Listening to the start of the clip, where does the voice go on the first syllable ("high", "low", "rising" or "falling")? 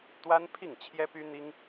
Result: high